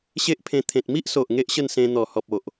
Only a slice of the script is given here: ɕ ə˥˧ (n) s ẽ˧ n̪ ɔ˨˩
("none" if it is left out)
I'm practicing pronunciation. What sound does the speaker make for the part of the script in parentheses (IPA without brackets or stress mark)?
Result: n